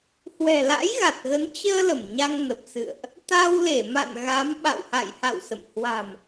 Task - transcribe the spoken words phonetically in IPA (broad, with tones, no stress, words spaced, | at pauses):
hwɛ̤˨˩la̰˧˥jɣa˨˩t̚ɣə˨˦n t͡ɕəː˧ lə˧˩mɲa˧ŋnə˨˩p̚ sɨ̰˧˨ə̯ʔ | t̪a˧wle˧˩ma̰˧˨n ɣa˨˦m ɓa̰˧˨wha̰˧˨jha̰˧˨w sə̰˧˨m hwa̤˨˩m